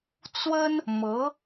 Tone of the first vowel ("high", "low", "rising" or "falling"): high